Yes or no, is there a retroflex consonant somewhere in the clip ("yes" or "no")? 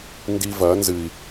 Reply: no